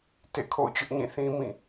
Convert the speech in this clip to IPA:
tḛ˦˨kʰo̰˦˨ʊ̯t͡ɕʊ˦ʔɲĩ˦˨ θĩ˦ mĩ˦˨

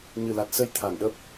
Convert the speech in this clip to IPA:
ɲɨ˨˩la˨˩t̚sə˧j t̪ʰa˧˩nɗə˦˥p̚

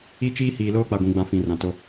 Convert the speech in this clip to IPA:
i˦t͡ʃiː˦ hiː˨loː˦k͡pa˨ɡʷĩ˨ ɡ͡bã˦fĩ˨rã˨to˦

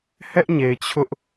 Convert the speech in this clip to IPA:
hɛ˦ʔ ɲe˨ɪ̯t͡ɕʰʊ˦ʔ

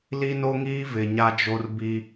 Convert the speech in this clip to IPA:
li˦no˦ŋiː˦ vɪ˨ɲa˦d͡ʒo˦r bi˦

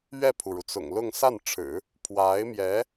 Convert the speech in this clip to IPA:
ɥɛ˥˩pʰu˩ɻu˩ t͡sʊ̰˨˩ŋlʊ˥˧ŋ sa˥˩nʈ͡ʂʰɻ̩˨˩˦ | pʰwa˧˥ɪ̯mjɛ˧˥

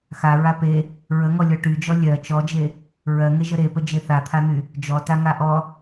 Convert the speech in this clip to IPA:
xa ɹape | ɹəŋɔlʲɔ ʈyd͡ʒɔ lʲɜ t͡ʃɔd͡ʒe | ɹɜŋe ʒəɾepə d͡ʒeθat̪ʰan̪y | d͡ʒɔtaŋa ʔɔ

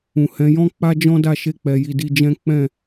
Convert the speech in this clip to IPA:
ũ˨hɛ̃˨˦jɔ̃˦k͡pa˦ d͡ʒɔ̃˦da˦˨ʃe˧k͡pɛ˨ ji˧di˧d͡ʒɛ̃˦ k͡pɛ̃˦˨

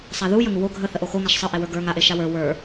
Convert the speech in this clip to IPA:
sˤaðu jəŋuwo ɡʱə θəʔoxoŋaʃ sˤə ʔewə˞ɡə˞ ŋaʔe ʃawə˞ wə˞

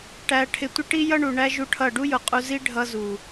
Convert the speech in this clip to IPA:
ʈæ˧ʈʰɪ˧tʷɪ˦ ʈi˦jʌ˦ɳu˨ɳæ˦ ʒu˦ʈʰʌ˦˨ ɖu˦jʊ˨qʼu˧ zi˦ ɖʱʌ˧zu˨

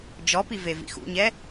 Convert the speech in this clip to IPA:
d͡ʒɔpi vevḭxṵɲɛ

